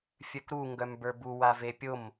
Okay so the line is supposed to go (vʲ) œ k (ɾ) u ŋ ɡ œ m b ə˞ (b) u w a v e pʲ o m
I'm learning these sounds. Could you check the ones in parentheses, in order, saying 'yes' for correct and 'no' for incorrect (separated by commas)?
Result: no, yes, yes